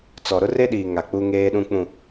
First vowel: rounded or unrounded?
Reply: rounded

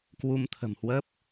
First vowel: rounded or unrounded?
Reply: rounded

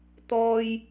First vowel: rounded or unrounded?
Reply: rounded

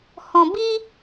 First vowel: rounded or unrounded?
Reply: rounded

